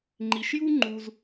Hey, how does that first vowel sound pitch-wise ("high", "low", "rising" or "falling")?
low